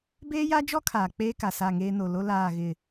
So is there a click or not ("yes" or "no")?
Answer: no